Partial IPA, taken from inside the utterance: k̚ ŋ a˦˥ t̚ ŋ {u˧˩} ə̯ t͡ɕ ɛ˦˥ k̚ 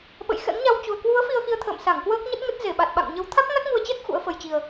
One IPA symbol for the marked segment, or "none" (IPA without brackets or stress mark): u˧